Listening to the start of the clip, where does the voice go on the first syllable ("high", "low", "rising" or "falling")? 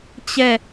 falling